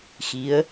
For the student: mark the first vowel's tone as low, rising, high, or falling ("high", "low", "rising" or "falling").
rising